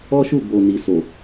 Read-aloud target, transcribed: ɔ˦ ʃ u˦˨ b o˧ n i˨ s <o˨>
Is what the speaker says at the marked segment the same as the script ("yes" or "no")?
yes